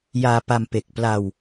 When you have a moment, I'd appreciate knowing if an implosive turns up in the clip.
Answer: no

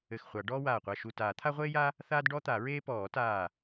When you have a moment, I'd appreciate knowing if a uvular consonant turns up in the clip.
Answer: yes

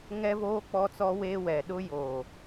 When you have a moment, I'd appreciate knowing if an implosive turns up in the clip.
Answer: yes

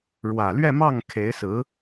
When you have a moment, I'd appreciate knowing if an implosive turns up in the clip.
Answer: no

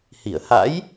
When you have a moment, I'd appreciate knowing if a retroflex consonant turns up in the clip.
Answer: no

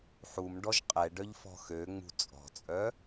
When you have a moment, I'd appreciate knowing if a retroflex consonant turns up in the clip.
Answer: yes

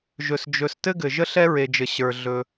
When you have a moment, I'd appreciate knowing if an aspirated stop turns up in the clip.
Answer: no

